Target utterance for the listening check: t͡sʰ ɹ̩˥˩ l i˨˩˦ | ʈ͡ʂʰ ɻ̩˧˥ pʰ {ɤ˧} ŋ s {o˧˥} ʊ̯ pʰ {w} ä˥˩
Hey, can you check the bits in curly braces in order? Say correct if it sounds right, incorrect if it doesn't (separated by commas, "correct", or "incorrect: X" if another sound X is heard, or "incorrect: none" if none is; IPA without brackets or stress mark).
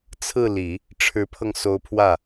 correct, correct, correct